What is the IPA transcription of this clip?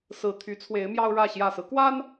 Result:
sɹ̩˨˩t̪ʰy˨˦ t͡sʰwe˨˦ɪ̯mjɑ˦ʊ̯ɻä˥˨ ɕjä˨˩sɹ̩˦kwa˦n

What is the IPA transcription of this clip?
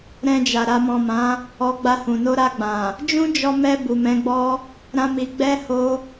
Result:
ɾɛ̃˧d͡ʒa˨ ɾa˨mɔ̃˨ mã˨˦ | ɔ˧ɡ͡ba˧hũ˨ no˧ɾa˧ɡ͡bã˨ | d͡ʒũ˦d͡ʒɔ˧mɛ˧ bu˨mɛ̃˨˦ɡ͡bɔ˦ | ɾã˦mi˧ ɡ͡bɛ˦ ho˦

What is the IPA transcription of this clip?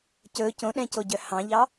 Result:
cɵ cõɗɛ̃coɟœ hɑ̃ʎɑ

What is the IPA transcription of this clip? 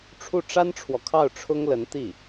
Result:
ʈ͡ʂʰu˥˩ʈ͡ʂa˥nʈ͡ʂʰwɔ˨kʰɑ˥˩ʊ̯ ʈ͡ʂʰʊ˥ŋlə˧˥nt̪i˥˩

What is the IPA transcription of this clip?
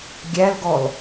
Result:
ɡʲælɡɔl

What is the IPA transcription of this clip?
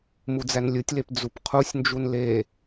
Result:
mud͡zænlʲɯtʲlep d͡zupqʰusʲnd͡ʒun le

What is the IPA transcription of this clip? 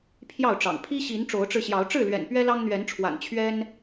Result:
pʰjɑ˥˨ʊ̯ʈ͡ʂɑ̰˨˩ŋ pʰi˦ɕi˨˦n ʈ͡ʂo˨˦ʊ̯ʈ͡ʂɻ̩˧ɕjɑ˨˦ʊ̯ ʈ͡ʂɻ̩˥˨lɥɛ̰˨˩n pɥɛ˦lɑ˦ŋn̪ɥɛ˨˦nʈ͡ʂʰwa̰˨˩n t͡ɕʰɥɛ˦n

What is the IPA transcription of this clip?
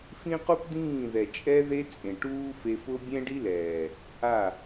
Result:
fĩ˦qu˦pd̪ĩː˦˨ðɛ˨ t͡ʃʼɛ˧ðe˧t͡sʼẽ˨ ʈuː˦fe˧fʊ˦ bʲɛ̃˦ɖi˦lɛː˨ | a˦˨

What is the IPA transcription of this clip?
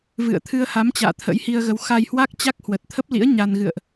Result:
vɨ̰˧˨ə̯ t̪ʰɨ˧ə̯ha˨˦mt͡ɕa̰ː˧˨ t̪ʰə̰˧˥jhi˧ə̯ɣə˨˦w xa˧jhwa˦˥k̚t͡ɕa˦˥k̚ hwə˨˩t̚t̪ʰə˦˥p̚lḭ˧˥ə̯ ɲa˧n ɣɨ̰˧˨ə̯ʔ

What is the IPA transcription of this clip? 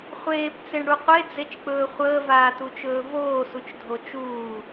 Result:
χʷeːpt͡seɳɽu qʷed͡zet͡ʃk͡pɵː χʷəːvaːtut͡ʃɵː voːsut͡ʃdʱo t͡ʃuː

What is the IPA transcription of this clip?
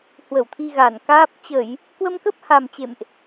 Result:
hwə˧˩wt̪ʰi˧ ɣa˧˩nkaː˦˥p̚ t͡ɕə˧˩˨j | kwə˧mkə˦˥p̚ha˨˩m t͡ɕḛ˧˨mʔ

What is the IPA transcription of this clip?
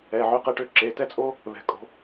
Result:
ɛ˩˧˩ ʕø˨˦qɛ˨˦ʈø˨˦ ǁe˩˧˩tɛ˥t͡sʼo˥ | βɛ̤˨˦kʼo̤˨˦

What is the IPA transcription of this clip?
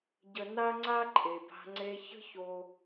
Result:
ɟə˧ na˥ŋ͡ǀa˥ǃʼe˩ba̤˧ ŋ͡ǀe˧çə̤˥ ço˧

